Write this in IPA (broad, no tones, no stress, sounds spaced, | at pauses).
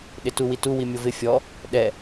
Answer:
ɗ ɪ t u w i t u w i mʲ o v ɪ fʲ ɔ | ɗ ɛ